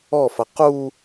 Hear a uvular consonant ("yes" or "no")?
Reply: yes